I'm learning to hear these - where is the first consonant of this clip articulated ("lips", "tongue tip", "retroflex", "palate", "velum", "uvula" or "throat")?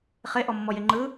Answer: uvula